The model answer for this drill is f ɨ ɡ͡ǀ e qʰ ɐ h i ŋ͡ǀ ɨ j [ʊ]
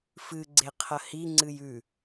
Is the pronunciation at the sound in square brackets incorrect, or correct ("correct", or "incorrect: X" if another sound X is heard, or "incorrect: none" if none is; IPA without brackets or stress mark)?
incorrect: ʉ